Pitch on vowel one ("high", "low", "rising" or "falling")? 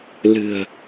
low